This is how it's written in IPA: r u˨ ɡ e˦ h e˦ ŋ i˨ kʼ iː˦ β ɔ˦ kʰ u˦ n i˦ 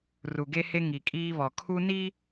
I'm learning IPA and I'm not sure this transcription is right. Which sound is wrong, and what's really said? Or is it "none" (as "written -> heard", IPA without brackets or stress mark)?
ɔ˦ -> ɔ˨